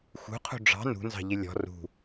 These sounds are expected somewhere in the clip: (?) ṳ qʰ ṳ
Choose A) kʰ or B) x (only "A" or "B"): B